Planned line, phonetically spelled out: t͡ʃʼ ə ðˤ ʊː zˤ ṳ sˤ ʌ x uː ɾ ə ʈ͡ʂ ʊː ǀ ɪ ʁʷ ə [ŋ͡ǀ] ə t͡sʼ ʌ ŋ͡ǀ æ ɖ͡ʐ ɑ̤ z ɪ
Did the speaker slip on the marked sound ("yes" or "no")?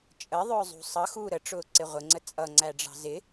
no